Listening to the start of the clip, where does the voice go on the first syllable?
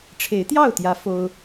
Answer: rising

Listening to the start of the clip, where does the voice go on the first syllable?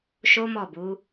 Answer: high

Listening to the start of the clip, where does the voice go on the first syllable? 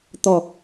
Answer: low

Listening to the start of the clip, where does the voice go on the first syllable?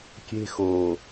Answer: high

